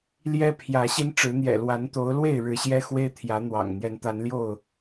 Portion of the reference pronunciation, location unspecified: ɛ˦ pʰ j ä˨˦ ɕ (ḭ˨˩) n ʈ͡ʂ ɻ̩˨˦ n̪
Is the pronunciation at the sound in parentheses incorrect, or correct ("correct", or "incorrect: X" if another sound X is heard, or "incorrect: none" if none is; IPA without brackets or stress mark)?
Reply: incorrect: i˦